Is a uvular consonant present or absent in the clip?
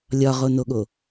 present